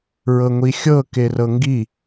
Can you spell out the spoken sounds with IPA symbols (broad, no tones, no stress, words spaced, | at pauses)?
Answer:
ɹɤŋʷixʲɤ kerɤŋɡi